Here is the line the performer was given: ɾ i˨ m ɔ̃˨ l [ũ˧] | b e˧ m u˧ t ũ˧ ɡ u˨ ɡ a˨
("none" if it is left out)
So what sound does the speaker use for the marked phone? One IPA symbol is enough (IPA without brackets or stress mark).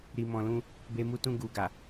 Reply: ũ˧